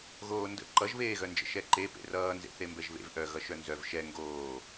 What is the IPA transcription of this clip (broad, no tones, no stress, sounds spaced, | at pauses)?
ɣ oː n d ə̰ ǃ ʌ ʒ β eː ɣ œ n d͡ʒ ə̰ ʃ ɛ ǃ e p ḛ r ʌː n z ḛ θ e m b ɛ ʒ β ḛ v ʔ œ ɣ ʌ ʃ œ n z œ v ʃ ɛ ŋ ɡ oː